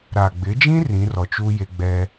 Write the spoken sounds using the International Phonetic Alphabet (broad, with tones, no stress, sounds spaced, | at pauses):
ɾ a˨ ɡ͡b ɪ˨˦ d͡ʒ ĩ˦ r ĩ˨˦ r ɔ˨ t͡ʃ u˦ j e˦ ɡ͡b ɛ˦